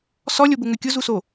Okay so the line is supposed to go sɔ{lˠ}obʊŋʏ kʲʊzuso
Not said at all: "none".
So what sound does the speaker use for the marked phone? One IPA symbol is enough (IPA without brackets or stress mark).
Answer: lʲ